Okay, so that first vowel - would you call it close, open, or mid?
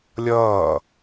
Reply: mid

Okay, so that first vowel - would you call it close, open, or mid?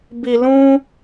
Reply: close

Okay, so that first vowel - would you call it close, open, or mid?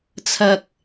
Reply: open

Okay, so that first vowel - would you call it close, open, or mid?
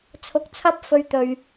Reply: close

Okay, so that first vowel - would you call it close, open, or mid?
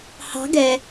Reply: open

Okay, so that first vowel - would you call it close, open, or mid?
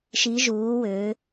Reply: close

